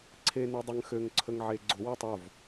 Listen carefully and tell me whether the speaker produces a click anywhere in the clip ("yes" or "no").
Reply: yes